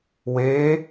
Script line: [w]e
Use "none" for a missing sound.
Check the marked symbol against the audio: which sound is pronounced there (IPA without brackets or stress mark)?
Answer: w